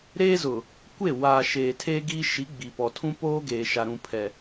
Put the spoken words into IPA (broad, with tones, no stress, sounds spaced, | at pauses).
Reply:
ɾ eː˦ z ʊ˨ | kʷ e˦˨ w aː˨ ʃ eː˨ tʰ eː˦ ɡ iː˦ ʃ i˨˦ ɡ͡b i˨ p ɔ˨ tʰ ũ˦ p oː˦ ɡ eː˨ ʃ a˨ ɾ ũ˨ pʰ ɛ˨